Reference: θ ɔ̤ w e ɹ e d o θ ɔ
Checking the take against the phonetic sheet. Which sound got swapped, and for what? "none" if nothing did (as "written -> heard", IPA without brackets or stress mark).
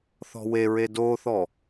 none